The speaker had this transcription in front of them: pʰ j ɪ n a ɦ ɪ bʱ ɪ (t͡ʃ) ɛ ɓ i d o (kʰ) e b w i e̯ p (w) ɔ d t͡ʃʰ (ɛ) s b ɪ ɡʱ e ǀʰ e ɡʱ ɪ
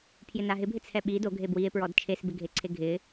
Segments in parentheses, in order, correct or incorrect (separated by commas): incorrect, incorrect, incorrect, incorrect